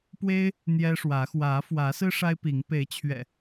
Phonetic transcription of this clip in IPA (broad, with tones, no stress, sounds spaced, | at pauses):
p w e˦ ɪ̯ | n̪ j ɛ˦ ʂ w ä˨˦ x w ä˨˦ f w ä˨˦ s ɹ̩˦ ʂ a˦ ɪ̯ p i˨˦ ŋ p e˨˦ ɪ̯ t͡ɕʰ ɥ ɛ̰˨˩